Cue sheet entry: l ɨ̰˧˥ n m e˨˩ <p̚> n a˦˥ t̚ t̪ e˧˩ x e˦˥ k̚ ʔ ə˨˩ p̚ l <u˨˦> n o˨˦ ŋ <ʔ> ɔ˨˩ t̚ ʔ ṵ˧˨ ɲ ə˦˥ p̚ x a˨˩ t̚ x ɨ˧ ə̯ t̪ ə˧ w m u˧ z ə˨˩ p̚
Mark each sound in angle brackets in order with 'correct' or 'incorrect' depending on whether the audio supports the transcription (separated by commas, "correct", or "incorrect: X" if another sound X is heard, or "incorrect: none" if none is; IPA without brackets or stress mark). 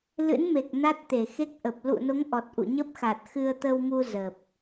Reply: incorrect: k̚, incorrect: ṵ˧˨, correct